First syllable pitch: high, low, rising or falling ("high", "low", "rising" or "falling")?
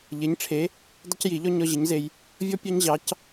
rising